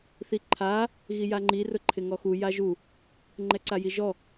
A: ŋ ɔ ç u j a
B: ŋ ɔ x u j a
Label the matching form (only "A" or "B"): B